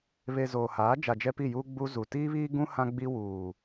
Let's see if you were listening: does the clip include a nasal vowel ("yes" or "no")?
yes